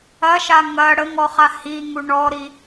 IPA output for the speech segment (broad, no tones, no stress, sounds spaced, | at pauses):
ɐ ʃ a ŋ ɐ ɽ ə ŋ ɔ χ a h i ŋ u ɳ ɔ ɾ i